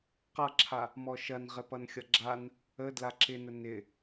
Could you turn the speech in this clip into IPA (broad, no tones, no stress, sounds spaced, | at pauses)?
q ʌ ǁʰ a | m ɔ ʃ ɐ n ʁ ɪ p ʌ n xʲ ʌ ɡ͡ǁ a n | ə d l a ǁ ɪ n ə n ɪ